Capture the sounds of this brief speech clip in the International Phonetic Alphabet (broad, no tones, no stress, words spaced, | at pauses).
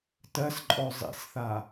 tɜsǃʼɔ zˤḭsθa